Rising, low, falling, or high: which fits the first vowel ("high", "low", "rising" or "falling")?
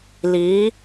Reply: rising